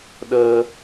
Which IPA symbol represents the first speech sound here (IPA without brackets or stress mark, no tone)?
ɗ